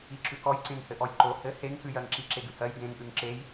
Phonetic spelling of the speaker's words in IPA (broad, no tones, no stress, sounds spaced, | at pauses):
i ǁ ʉ k ɔ j ǀ ẽ ŋ h ɘ ʔ ɔ j ǃ o h ɘ h e ŋ k ʉ j ɜ ŋ ǁ i ǁ e ɡ ʉ h ɜ j ɡ ẽ ŋ ʔ ʉ ŋ ǁ e j